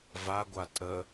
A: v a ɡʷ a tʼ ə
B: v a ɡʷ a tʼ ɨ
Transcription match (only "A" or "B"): A